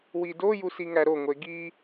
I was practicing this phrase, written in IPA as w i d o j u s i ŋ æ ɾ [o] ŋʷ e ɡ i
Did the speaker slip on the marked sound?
no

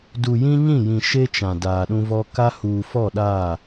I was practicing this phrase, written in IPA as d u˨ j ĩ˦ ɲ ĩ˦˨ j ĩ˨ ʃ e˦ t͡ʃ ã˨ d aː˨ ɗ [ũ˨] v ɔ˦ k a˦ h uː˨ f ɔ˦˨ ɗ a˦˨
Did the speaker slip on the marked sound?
yes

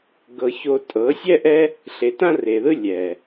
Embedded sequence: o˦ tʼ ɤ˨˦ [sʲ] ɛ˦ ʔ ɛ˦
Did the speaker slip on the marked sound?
no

